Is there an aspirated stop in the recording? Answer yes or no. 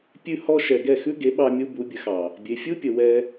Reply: no